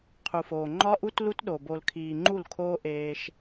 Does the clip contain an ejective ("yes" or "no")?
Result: no